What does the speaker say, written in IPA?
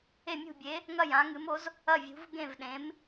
e˥˩ mʲ ṳ˥˩ bʲ e˨˥ | ŋ ɐ˥˩ j ã˨˥ ŋ ɨ˨˥ m o˨˥ z | ɐ˥˩ vʲ ṳ˨˥ v ɡ ẽ˥˩ v ɗ ẽ˨˥ m

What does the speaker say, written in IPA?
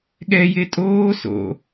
ɠ ɛ j e tʼ oː s o̰

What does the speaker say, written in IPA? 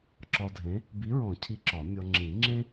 ǁ ɒ˧ dʱ ẽ˨˥ | b i˨˥ ɹ ɔ̃˨˩˦ cʰ i˨˥ ǁ ɒ˨˩˦ mʲ ɔ˧ ŋ͡ǁ ĩ˨˩˦ ŋ͡ǁ ẽ˥

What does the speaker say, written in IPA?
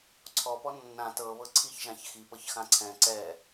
ǀʰ ɔ p ɔ nː ã t ɤ β ɤ ǀʰ i ç ʒ ã ç x i p ɤ ç x ã ǀʰ ɛ̃ ǀ ɛ

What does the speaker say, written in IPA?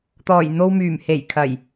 t̪ ɔː˨˩ j n̪ o˧ w m yː˨˩ m h e˨˩ j kʰ ɐ˨˩ j

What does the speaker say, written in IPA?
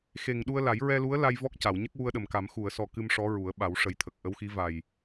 x e˨˩ ŋ ɗ u˧ ə̯ l a˨˩˦ j ɹ ɛ˧ l u˧˥ ə̯ l a˧ j v ɔ˦˥ k̚ c a˨˩˨ w ɲ ə˦˥ k̚ w u˧ ə̯ ɗ ə˨˩ m k a˨˩˦ m x u˨˩˨ ə̯ s ɔ˨˩ k ɨ˧ m ʂ ɔ˧˥ ɹ u˨˩˦ ə̯ ɓ a˨˩˦ w ʂ ə˨˩˦ j t̪ʰ ə˨˩ k̚ ʔ ə˧˥ w x i˧˥ v a˨˩ j

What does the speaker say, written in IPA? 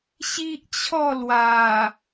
ɕ i˦ ʔ t͡ɕʰ ɔ˥˧ l w a˨˩

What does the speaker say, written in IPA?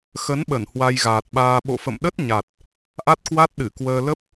x ə˨˦ n ɓ ə˧˩ n h w a˧ j ɣ aː˨˩ t̚ ɓ aː˧ ɓ o̰˧˨ f ə̰˧˨ m ɗ ə˦˥ t̚ ɲ a˨˩ t̚ | ʔ a˦˥ t̚ k w a˦˥ t̚ ɗ ɨ˧˩ k w əː˧ l ə˦˥ p̚

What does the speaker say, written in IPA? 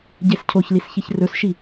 ɟ e s cʰ o ç l i s ç i ç r ɵ s ʃ i

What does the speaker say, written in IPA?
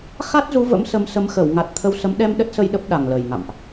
x a˦˥ t̚ z u˨˦ v ə̰˧˥ m s ə˨˦ m s ə˨˦ m x ə˧˩ w ŋ a˨˩ t̚ t̪ʰ ə˧ w s ə˨˦ m ɗ ɛ˧ m ɗ ə˦˥ t̚ s ə˧ j ɗ ə˦˥ p̚ ɗ a˨˩ ŋ l ə˨˩ j ŋ a̰˧˨ m ʔ

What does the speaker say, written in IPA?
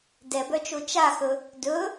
d ɛ b œ t͡ʃ o t͡ʃ a x ɵ | d ɵ

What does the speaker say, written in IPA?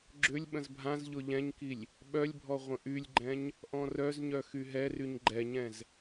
ɡ͡ǁ ʏ lʲ ɓ ə̃ z bʱ ã z ʎ ʊ ʎ ɛ̃ ɲ k i lʲ | ɓ œ lʲ bʱ ɔ ʁʷ ə̃ ʔ y lʲ ɡ͡ǃ ɛ̃ ɲ | ʔ ɔ̃ r œ z ɲ œ x y ɦ ɛ r y ɲ ɡ͡ǃ ɛ ɲ ɛ̃ z

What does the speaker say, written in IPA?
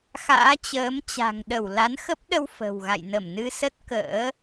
x a̰ː˧˥ t͡ɕ əː˨˦ m t͡ɕ a̤˨˩ ŋ ɗ ə˧˩ w l a˨˦ n x ə˦˥ p̚ ɗ ə˧ w f ə̤˨˩ w ɣ a̰˧˨ j n ə˧˩ m n ɨ˧ s ə˦˥ t̚ k ə̰ː˧˥

